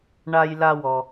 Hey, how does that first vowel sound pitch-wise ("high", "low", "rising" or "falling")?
high